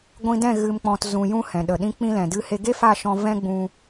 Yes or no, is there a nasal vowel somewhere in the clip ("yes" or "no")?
yes